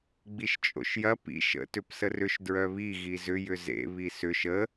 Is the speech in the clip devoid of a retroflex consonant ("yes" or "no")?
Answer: yes